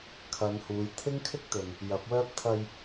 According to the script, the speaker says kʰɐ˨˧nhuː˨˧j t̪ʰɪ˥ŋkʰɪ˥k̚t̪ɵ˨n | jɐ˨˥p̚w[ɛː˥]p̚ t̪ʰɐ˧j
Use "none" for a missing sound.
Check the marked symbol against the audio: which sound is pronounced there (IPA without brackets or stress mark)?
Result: œː˥